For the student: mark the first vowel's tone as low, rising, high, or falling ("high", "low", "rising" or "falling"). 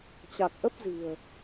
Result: low